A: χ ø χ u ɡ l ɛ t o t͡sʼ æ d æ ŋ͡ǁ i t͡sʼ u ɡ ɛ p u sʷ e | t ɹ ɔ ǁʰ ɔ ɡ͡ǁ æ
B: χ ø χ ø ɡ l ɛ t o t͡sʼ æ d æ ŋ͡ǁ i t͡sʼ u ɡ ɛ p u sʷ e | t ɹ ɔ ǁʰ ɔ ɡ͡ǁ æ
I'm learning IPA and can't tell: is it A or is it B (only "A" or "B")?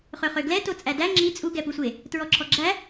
B